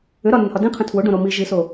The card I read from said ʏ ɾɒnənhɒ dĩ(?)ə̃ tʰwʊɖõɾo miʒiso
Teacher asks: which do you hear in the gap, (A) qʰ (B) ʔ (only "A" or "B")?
A